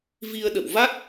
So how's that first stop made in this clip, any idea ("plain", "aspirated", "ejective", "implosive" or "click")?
implosive